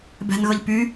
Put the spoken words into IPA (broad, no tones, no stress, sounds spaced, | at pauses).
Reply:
b ɛ̤ n ɣ ɤ ʎ p y